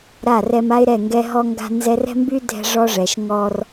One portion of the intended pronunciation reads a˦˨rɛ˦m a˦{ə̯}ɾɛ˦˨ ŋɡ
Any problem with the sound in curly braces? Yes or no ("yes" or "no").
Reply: yes